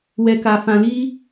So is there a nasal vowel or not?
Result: yes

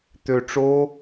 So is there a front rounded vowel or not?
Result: yes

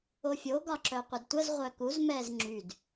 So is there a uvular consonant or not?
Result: yes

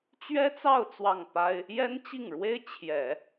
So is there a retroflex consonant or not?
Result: yes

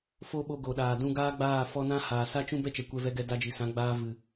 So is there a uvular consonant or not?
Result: no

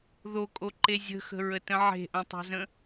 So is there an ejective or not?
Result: yes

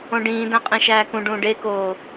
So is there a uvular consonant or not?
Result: yes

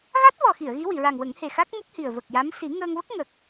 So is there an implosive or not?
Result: no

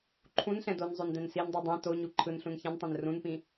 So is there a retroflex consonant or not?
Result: no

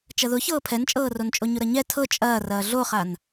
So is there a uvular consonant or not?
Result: yes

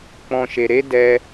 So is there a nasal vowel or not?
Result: yes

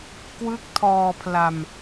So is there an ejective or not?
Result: no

